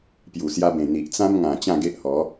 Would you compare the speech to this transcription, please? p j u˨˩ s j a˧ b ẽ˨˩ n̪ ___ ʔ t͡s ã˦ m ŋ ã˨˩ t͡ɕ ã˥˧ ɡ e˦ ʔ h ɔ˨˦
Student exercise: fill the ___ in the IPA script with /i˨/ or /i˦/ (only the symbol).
i˨